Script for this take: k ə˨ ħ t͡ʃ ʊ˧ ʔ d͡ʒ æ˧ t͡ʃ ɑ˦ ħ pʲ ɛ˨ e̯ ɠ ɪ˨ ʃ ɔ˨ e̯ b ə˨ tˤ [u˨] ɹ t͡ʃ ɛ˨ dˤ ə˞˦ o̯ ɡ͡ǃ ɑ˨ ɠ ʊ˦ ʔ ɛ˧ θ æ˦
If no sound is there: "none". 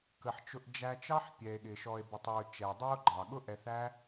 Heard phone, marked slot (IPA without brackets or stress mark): u˨